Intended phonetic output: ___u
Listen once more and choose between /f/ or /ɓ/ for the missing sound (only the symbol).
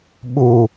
ɓ